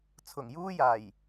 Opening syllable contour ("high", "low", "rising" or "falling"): low